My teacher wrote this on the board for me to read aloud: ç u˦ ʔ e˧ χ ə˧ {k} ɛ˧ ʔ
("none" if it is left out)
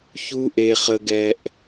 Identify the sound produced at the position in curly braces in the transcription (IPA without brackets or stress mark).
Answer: ɡ